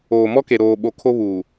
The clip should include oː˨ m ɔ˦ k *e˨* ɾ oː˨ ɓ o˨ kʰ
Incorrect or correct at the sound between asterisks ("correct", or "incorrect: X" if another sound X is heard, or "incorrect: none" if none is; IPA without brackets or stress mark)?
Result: correct